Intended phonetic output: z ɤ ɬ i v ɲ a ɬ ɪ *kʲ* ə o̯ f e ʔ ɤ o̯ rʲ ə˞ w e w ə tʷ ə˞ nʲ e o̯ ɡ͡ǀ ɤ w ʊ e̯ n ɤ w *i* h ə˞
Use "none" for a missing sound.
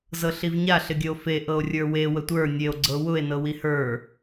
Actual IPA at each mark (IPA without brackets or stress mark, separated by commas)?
ɡʲ, i